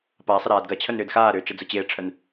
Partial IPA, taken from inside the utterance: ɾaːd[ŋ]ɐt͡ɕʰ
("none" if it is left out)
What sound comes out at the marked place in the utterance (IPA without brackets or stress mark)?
ɡ